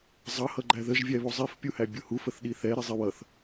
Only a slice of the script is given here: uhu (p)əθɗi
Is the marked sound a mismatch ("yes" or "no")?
yes